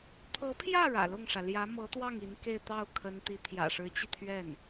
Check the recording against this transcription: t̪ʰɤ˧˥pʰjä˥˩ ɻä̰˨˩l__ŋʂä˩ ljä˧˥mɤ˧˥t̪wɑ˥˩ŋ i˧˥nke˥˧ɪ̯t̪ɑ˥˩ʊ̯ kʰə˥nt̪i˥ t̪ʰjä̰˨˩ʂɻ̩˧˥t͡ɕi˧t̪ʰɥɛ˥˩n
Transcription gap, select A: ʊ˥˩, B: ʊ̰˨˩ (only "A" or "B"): A